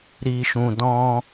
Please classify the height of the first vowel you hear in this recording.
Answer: high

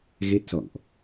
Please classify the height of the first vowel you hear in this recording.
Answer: mid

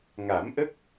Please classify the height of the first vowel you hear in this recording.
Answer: low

